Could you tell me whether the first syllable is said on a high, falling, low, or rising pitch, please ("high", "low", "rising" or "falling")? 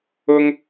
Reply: high